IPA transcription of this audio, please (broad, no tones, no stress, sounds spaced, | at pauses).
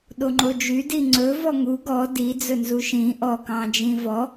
ɗ o ŋ͡ǃ o d͡ʒ y d i ŋ͡ǀ ɵ v ɔ ŋ u ɡ ɔ d i d͡z ɵ n z u ʃ ĩ ʔ ɔ k ɑ̃ d͡ʒ ĩ v ɔ